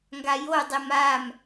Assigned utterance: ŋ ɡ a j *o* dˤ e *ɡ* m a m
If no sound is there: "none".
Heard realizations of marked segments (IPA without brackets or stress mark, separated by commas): o, none